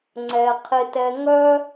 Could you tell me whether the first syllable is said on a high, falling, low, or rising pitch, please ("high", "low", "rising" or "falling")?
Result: low